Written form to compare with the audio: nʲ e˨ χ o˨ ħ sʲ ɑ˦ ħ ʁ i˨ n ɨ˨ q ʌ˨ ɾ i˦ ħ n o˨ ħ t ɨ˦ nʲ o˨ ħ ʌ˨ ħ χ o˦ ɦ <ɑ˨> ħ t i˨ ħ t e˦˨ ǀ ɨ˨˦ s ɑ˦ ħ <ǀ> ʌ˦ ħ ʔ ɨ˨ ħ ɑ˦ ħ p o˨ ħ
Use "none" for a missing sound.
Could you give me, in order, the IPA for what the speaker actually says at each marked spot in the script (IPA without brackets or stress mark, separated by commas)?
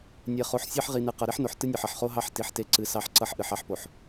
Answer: ɑ˦, ǀ